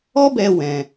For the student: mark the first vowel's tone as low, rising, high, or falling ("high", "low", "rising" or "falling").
high